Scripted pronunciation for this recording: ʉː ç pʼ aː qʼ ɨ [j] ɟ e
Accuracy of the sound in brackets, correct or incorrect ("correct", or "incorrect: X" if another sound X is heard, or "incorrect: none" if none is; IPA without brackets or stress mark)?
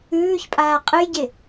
correct